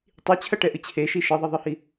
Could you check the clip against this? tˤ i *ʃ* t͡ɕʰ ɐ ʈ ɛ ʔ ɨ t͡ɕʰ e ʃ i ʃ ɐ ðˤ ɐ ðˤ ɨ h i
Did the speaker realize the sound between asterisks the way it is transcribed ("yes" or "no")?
no